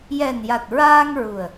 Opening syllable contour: low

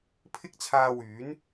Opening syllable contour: high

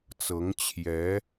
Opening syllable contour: rising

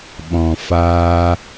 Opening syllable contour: low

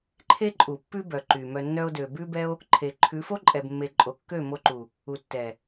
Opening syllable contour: high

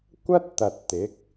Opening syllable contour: high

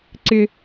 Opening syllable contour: high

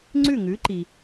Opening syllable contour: falling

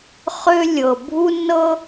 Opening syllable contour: high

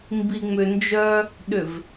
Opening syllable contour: low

